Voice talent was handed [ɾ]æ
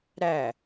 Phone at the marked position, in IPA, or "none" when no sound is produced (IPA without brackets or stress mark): ɾ